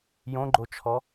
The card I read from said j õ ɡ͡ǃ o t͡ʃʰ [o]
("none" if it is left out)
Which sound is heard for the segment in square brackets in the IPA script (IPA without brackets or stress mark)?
ɔ